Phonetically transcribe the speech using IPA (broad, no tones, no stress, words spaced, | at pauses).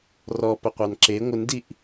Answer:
rɔpəqʷɑn ǁe ŋʷəndiʔ